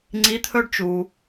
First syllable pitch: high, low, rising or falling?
rising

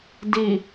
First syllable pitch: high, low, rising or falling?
low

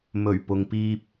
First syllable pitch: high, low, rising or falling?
low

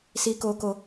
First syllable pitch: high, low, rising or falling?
high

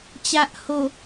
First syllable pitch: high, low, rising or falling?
low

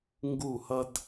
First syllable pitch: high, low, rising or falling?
falling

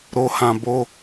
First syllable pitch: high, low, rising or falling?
low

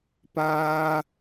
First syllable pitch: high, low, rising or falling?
high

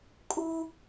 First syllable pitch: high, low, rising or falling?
high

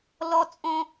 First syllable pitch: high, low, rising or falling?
high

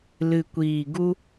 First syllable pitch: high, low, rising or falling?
low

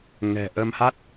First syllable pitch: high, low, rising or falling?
low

